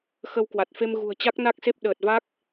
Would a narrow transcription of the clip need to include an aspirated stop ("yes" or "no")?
no